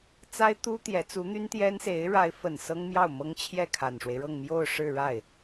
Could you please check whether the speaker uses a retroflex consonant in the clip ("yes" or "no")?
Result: yes